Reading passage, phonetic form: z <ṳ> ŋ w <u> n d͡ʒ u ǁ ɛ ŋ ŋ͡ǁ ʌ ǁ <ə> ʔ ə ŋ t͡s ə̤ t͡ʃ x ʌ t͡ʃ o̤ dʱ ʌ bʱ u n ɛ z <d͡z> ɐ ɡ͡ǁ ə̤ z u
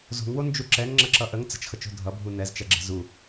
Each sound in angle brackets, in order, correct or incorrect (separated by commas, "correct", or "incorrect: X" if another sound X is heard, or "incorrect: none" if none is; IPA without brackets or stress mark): incorrect: o̤, incorrect: o, incorrect: ʌ, incorrect: t͡ʃ